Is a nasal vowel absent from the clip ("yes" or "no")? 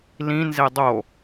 no